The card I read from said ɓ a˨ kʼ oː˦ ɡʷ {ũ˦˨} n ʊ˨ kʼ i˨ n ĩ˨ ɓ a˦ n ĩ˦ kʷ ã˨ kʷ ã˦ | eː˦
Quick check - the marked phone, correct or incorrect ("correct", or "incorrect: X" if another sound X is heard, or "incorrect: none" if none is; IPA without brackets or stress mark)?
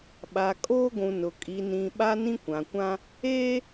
incorrect: ũ˨